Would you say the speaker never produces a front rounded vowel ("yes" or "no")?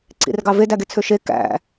no